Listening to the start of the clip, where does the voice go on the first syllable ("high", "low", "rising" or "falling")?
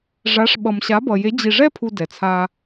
rising